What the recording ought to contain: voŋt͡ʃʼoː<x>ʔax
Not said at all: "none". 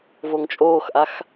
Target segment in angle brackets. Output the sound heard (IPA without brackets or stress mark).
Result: x